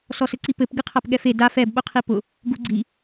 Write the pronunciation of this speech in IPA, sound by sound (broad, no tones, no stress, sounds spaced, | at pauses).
s ɔ s ɘ ǀ i p ɘ p ɡ ɨ qʰ a p ɠ ɛ f e d a f ɛ b ɓ ʊ qʰ i p ʊ | ɡ u ɡ͡ǀ i